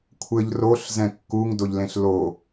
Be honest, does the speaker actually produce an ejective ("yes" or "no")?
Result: no